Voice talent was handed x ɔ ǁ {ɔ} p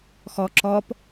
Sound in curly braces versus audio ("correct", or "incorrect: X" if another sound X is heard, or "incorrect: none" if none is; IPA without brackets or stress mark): correct